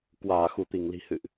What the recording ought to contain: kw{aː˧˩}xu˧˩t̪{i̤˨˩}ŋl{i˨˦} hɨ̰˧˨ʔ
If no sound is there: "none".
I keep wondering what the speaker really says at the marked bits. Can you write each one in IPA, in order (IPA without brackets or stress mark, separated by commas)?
aː˧˩, i˧˩, i̤˨˩